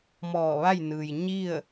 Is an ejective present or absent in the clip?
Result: absent